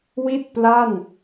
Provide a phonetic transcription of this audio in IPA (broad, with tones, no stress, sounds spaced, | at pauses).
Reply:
w i˥˩ t̚ p l a˥˩ n